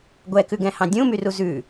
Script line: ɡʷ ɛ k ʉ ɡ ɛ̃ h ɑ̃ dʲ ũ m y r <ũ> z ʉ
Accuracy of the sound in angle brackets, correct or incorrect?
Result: incorrect: u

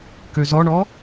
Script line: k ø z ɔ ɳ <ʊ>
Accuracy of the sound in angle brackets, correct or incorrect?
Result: incorrect: ɔ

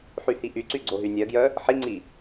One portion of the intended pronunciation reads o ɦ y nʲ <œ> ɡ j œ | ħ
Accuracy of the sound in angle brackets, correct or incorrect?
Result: correct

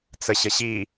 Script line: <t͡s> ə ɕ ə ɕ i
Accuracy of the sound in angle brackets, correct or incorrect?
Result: correct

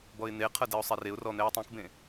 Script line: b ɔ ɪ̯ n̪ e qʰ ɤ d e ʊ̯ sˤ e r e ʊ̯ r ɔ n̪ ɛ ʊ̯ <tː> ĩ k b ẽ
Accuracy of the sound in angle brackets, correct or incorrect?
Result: incorrect: tˤ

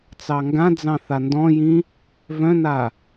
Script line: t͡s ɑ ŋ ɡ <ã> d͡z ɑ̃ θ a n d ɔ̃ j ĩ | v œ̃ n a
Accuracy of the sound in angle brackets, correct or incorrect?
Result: correct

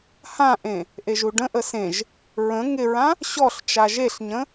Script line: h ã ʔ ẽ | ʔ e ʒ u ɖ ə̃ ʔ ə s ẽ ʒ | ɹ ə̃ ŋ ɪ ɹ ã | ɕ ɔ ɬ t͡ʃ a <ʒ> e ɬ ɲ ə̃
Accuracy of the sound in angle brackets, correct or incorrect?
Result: correct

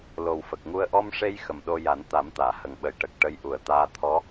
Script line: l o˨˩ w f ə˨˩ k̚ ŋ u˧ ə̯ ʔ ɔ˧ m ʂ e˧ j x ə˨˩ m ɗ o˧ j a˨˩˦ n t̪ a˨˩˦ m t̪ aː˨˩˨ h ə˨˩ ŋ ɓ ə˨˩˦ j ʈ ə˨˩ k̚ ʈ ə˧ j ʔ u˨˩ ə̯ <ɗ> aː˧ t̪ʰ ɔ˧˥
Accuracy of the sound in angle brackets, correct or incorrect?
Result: incorrect: t̪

